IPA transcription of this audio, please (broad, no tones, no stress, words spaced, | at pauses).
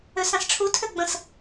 øsãsʈ͡ʂʰu tʰøɡ͡bə̃s